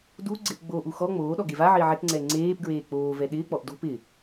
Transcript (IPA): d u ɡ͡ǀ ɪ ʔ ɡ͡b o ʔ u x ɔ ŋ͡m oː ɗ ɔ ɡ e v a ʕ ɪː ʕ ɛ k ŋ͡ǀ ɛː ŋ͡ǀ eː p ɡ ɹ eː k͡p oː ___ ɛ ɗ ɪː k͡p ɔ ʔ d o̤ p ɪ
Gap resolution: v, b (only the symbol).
v